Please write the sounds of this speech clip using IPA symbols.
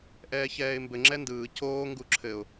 ʔɛːçɛːɪ̯mbɘ ŋ͡ǁɛndɯː coː ŋɡuǁʰɘʊ̯

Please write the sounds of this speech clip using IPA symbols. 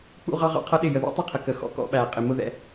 k͡pṵ˦ʁɑ˦ ʁɑ̰˦qʰʌ˦ɗɪ˦˨ jə˨ðḭ˦tˤɪ˦˨qʰə˨ kə˨xɔ̰˦kɔ̰˦ ɓæ˨qʼɪ˨mʊ˦ðɛ̰˦

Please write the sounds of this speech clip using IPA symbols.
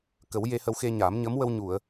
kə˨˩˦w je˧hə˧wxe˧ɲaː˨˩˦m ɲə˧˥mwə˧w ɲu˨˩˨ə̯

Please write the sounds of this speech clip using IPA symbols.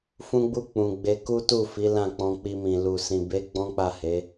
fũ˦ɡ͡bu˦ k͡pũ˧ ɡ͡be˧ku˦tu˦˨fi˨˦ lã˦˨k͡pɔ̃˧k͡pi˧mĩ˨ lu˨sĩ˨be˨˦ ɡ͡bɔ̃˦k͡pa˦˨he˨˦

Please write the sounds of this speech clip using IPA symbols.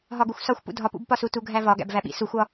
ɦɒɡuxʷsɒxʷpṵ dʱɒpṵbpɒsu tuɡʱævɒ ɡæ̰bvæɓḭ suxʷɒ

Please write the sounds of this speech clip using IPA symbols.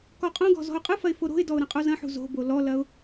kɔqʼõɡɔ̤ zɔ̤ʊ̯qʼɯfɐɪ̯ foɾo̤ɪ̯dɔʊ̯ ɾɐ̃qʼozɐ̃ħṳ zo̤bo lɔlɐʊ̯

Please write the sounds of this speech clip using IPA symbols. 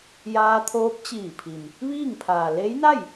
jaː˧t̪ʰoː˧˥p̚t͡ɕiː˧˩pʰi˩m | ʋiː˥˨ŋpʰaː˩ le˧˥jna˥˨j

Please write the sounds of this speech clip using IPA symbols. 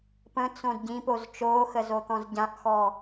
pə̃t͡sõd ɟĩpoz t͡ʃoːxəzot̪ɔ̃z ɟãʔxɔ

